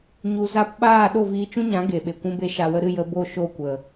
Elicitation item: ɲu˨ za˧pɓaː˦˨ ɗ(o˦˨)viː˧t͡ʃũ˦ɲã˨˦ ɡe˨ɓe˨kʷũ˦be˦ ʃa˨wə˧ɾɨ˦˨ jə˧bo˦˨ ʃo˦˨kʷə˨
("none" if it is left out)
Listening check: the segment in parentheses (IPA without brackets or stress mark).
o˦˨